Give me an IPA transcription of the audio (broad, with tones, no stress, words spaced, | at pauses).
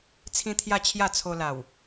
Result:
t͡sʰĩ˦t̪ʰja˥˧t͡ɕʰja˥˧ t͡sʰo˧la˨˩w